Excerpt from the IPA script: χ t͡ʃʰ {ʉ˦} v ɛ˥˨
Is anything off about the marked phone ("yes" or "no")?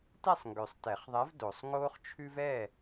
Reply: no